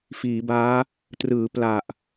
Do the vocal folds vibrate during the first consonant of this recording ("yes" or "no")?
no